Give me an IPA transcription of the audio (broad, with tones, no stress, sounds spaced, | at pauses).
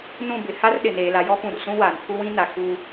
n ũ˦˨ b ɪ˨ h a˦ r ɗ ɪ˨ n eː˨ l a˨ j ɔ˦ p ũ˨ r s ũ˦ w aː˨ n pʰ u˦ w ĩ˦ n a˨ k u˦